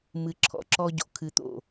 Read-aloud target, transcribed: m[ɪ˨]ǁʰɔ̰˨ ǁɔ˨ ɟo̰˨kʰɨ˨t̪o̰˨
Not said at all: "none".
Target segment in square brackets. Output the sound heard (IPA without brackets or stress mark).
ɨ˨